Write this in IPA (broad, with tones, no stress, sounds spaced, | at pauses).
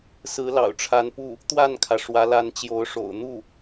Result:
s ɹ̩˧˥ l ɑ̰˨˩ ʊ̯ ʈ͡ʂʰ a˧˥ n p u˥˩ | t̪ w a˥˩ n kʰ ä˩ ʂ w ä˧˥ l a˧˥ n t͡ɕ j o˧˥ ʊ̯ ʂ o̰˨˩ ʊ̯ n̪ u˥˩